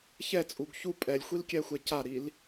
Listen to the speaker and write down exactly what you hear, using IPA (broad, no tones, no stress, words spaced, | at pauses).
çɛt͡sʼuɡ çu pʼɛlʲxʷilkʲɛxʷɛ caɾil